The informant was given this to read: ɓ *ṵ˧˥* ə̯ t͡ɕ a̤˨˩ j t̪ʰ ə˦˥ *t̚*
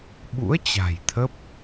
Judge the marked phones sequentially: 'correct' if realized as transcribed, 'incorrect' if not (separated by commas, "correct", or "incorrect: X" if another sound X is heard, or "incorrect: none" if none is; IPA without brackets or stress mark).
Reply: correct, incorrect: p̚